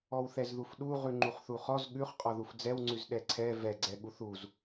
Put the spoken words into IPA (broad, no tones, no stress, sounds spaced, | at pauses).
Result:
ɔ w θ ɛ z ð u f ɗ u ʁ ʉ ŋ͡ǃ u χ θ u χ ɔ z ɠ ʉ χ qʼ ɔ ð u f d͡z ɛ w ŋ͡ǀ ʉ z ɗ ɛ ǀʰ ɛ v ɛ ɡ͡ǀ ɛ ɠ u θ u z